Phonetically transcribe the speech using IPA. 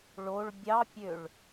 ɭoɭ bʲɑpʲøɭ

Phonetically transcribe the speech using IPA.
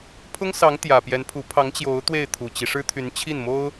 pʰʊ˥ŋsɑ˧˥ŋ t̪jä˨˩pjɛ˧˥npʰu˧˥ pʰɑ˧˥ŋt͡ɕjo˧˥ʊ̯ t̪we˥˩ɪ̯t̪ʰu˨˩t͡ɕi˦ ʂɻ̩˥t̪ʰy˧˥n t͡ɕʰi˥˩nmo˥ʊ̯

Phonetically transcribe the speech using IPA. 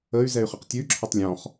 əy̯zɛy̯χəq tʲʉǁʰətˤ lʲɔ̃χ

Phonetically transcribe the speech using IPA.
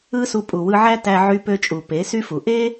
ɯ˦su˧ pʼu˨wɯ˧ʕæ˦ tæ˧ʕy˧pø˧t͡ʃʼu˨ pe˨˦sy˦fu˨ ʔe˦

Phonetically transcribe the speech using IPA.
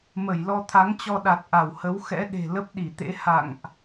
mə˧˩jlɔ˧t̪ʰa˨˦ŋt͡ɕɔ˧ ɗa˨˩t̚ʔa˧˩whə˨˦w xɛ̰˧˥ɗe̤˨˩ lə˦˥p̚ɗi˧˩t̪ḛ˧˥ ha̰˧˨ŋʔ

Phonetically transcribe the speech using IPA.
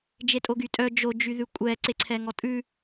d͡ʒetʼoɡytʼœ d͡ʒo d͡ʒyðʉkʷʼɛ ǀeǀʰɛŋɔtʼʉ

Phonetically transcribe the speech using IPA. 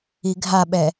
iɡʱaɓɛ

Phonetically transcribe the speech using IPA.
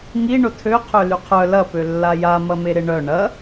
ŋi ɳʊtʰø qʰølyqʰœ lɐ pølːaja mɐmeɾɪɳœ ɳɐ

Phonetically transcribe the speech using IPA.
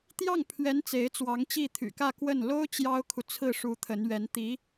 t̪jɑ˥˩ŋpʰɥɛ˧˥n t͡se˧˥ɪ̯t͡swɑ˧˥ŋt͡ɕi˥˩ t̪ʰy̰˨˩kä˥˧ kwə˥˩n lo˥ʊ̯ t͡ɕjɑ˥ʊ̯kʰu˨ t͡sʰɹ̩˥˩ʂu˧˥ t̪ʰə˧˥nɥɛ˧˥n t̪i˧˥

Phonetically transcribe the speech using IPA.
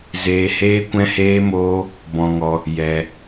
zeː˦ heː˦kʷɛ̃˦heː˦moː˦ | bɔ̃˦ŋɔ˦ | jɛ˧

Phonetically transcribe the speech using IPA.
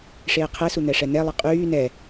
ʂeːqʰɛsu n̪ɛʂɛn̪ɛlˠi qʼyː nɛ

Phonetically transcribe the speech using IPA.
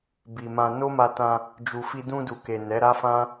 bi˨mã˧ no˦ma˧tã˧ | d͡ʒu˨fi˧ dũ˧du˨ke˨ nɛ˨˦ɾa˦fã˦

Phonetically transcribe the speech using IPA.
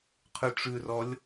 qʰʉʈ͡ʂʉrɔlʲ

